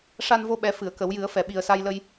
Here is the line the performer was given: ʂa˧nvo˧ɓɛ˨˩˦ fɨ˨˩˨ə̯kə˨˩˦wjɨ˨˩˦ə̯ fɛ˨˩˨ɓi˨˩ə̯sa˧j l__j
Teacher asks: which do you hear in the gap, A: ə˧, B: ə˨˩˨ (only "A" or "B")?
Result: A